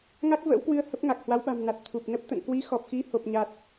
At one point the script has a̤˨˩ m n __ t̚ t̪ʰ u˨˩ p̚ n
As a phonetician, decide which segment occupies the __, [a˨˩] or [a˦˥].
a˨˩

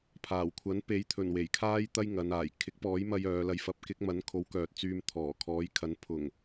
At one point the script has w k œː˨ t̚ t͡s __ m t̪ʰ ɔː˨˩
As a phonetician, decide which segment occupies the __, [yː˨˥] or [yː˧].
yː˧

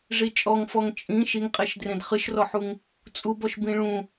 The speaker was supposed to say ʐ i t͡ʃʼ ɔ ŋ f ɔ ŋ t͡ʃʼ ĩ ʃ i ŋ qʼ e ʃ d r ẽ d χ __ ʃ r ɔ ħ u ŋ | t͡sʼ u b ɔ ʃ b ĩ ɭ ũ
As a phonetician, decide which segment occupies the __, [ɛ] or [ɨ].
ɨ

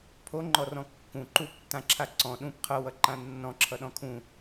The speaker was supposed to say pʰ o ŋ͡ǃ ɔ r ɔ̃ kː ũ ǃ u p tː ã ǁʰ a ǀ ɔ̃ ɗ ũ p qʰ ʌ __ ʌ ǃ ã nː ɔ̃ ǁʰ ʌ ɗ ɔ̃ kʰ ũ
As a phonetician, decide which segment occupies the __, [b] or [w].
w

